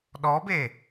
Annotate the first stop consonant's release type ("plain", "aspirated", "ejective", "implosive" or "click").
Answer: implosive